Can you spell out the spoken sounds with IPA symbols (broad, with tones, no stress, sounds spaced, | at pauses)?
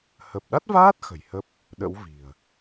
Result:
h ə˨˩ p̚ ɗ a˦˥ t̚ v aː˦˥ t̚ x ə̤˨˩ j h ə˦˥ p̚ | ɗ ə̰˧˥ w v i̤˨˩ ə̯